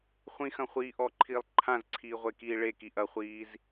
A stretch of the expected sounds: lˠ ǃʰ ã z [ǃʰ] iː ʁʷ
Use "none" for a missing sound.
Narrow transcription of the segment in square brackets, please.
ǀʰ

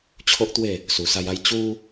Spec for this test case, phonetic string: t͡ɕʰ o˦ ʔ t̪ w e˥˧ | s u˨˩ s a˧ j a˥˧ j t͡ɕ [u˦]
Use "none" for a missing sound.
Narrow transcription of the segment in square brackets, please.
u˦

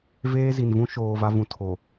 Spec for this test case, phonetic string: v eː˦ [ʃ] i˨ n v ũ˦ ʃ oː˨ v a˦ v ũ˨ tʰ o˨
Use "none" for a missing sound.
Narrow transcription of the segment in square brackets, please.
z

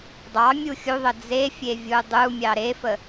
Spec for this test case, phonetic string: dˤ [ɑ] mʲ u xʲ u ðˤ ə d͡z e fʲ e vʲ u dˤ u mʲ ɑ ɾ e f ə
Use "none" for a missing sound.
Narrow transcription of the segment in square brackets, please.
ɑ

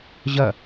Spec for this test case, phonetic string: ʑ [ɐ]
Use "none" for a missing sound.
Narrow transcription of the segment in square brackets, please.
ɐ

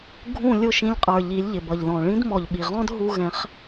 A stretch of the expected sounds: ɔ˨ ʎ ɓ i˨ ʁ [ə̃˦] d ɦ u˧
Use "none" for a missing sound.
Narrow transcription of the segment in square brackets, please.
ɔ̃˦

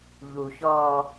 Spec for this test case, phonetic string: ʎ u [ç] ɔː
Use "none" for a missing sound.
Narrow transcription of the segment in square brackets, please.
ç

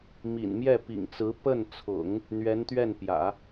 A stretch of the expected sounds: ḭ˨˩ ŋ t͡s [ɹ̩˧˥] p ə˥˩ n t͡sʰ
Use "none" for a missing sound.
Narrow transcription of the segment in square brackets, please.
ɹ̩˧˥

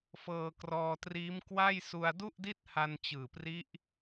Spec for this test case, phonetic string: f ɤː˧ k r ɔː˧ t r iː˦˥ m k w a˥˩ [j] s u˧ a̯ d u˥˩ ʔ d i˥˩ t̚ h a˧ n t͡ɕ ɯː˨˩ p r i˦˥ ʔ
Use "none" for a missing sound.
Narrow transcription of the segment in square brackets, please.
j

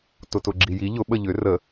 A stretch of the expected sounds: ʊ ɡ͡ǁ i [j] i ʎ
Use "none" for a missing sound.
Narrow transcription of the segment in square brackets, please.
j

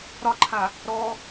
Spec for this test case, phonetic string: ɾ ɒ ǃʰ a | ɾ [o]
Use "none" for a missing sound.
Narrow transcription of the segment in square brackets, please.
ɔ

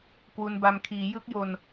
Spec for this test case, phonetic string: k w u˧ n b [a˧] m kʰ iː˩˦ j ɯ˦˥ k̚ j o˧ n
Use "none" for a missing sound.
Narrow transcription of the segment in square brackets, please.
a˧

